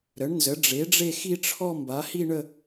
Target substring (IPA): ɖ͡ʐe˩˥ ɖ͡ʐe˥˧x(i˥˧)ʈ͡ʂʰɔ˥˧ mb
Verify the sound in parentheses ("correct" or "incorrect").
correct